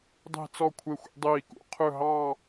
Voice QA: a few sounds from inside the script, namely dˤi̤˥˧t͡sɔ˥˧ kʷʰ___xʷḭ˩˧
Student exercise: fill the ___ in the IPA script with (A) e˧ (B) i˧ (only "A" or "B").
A